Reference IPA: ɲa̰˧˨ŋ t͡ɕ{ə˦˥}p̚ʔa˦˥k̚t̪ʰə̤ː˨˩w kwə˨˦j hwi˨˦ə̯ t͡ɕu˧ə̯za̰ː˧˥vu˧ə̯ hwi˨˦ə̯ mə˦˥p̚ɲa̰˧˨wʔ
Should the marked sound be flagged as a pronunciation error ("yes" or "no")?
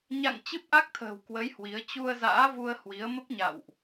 yes